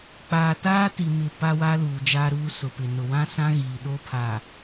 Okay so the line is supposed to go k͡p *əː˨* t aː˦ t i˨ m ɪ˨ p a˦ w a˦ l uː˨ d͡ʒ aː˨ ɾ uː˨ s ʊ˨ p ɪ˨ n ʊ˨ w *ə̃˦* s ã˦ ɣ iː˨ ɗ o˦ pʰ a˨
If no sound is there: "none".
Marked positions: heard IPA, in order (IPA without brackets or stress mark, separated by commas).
aː˨, ã˦